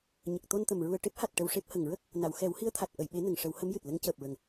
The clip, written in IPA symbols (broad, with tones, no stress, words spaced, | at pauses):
ɲə˨˩k̚t̪o˧nt̪ə˨˩m ɹu˨˩ə̯ʈe˦˥p̚ha˨˩t̚ ʈə˧wʂe˦˥p̚ hə˨˩ŋɹə˦˥k̚ | na˨˩˨w xɛ˨˩˦whi˧˥ə̯t̪ʰa˨˩t̚ ʔə˨˩˨jɓe˨˩˦ nə˨˩ŋ ʂə˨˩˦whə˧˥mjɨ˨˩t̚lə˧˥ŋ cəː˨˩p̚ɹə˨˩ŋ